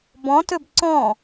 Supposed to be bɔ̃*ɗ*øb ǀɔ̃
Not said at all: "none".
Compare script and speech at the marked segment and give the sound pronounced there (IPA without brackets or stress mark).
t